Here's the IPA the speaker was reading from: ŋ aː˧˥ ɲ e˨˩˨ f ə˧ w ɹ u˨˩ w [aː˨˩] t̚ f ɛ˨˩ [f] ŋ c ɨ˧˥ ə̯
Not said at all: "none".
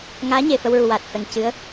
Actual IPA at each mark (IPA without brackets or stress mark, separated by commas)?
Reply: aː˨˩, none